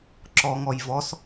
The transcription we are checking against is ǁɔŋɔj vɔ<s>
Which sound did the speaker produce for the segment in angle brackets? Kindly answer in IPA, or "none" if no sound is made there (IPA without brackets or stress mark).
s